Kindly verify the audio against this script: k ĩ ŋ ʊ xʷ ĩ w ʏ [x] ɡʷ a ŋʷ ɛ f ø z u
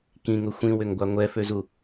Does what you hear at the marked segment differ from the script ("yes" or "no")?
yes